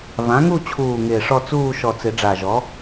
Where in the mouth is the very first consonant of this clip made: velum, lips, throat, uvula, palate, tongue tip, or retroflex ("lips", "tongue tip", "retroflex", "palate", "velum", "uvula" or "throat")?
lips